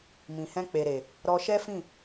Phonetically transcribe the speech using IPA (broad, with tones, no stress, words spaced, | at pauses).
mĩ˨hɛ̃˧k͡pe˨ɾe˨ | ɾɔ˧ʃɛ˦fĩ˦˨